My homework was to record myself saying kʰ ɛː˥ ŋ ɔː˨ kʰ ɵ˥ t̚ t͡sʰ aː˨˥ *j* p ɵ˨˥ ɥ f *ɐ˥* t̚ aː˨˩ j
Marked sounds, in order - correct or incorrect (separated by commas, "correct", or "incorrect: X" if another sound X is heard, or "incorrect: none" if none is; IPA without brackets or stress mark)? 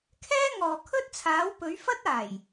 incorrect: w, correct